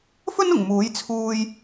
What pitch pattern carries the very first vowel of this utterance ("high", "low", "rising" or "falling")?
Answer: high